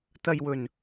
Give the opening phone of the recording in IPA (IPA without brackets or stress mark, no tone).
t̪